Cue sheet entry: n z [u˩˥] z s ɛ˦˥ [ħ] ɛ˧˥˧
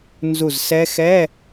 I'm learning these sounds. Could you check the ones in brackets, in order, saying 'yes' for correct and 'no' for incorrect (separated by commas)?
no, no